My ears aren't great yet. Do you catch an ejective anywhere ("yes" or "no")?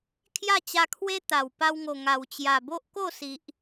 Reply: no